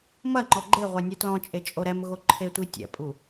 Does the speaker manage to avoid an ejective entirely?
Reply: no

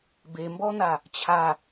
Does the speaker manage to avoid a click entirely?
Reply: yes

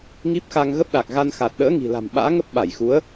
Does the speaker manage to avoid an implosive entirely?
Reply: no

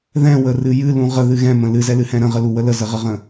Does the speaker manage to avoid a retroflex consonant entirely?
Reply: yes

